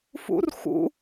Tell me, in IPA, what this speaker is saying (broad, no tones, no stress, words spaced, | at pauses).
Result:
fṵr xṵ